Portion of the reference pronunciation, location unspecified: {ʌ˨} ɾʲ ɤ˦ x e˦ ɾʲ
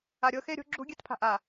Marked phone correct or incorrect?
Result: incorrect